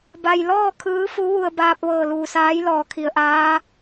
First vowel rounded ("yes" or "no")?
no